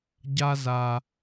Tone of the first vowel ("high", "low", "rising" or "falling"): high